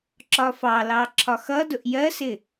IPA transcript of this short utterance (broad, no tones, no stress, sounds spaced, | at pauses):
ǁ ɒ f ɑ l ɑ ǁʰ ɒ x ʌ d ʊ ʔ j ɜ s ɪ